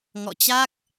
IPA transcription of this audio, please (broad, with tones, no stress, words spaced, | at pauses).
ŋɔ̰˧˨t͡ɕa˦˥k̚